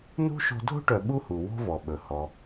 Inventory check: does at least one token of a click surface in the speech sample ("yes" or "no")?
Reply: no